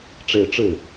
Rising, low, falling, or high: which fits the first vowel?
falling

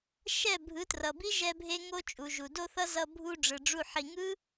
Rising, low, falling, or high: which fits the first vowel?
falling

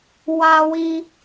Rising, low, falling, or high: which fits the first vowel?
high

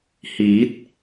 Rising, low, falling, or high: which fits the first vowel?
rising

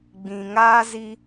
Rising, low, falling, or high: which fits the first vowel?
low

